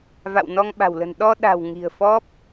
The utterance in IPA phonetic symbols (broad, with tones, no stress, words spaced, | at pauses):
va̰˧˨wnɔ˧ŋɓa̤˨˩wlə̤˨˩n ɗɔ˧ɗa̤˨˩w ŋi̤˨˩ə̯fɔ˦˥p̚